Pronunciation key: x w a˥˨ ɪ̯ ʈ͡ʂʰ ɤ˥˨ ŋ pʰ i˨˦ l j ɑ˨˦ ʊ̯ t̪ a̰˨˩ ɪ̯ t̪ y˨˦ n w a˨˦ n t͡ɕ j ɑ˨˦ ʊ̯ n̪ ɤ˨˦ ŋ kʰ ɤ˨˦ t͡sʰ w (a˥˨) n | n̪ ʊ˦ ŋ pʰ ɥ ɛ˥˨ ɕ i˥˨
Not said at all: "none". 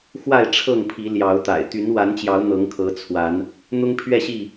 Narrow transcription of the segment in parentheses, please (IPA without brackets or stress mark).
a˨˦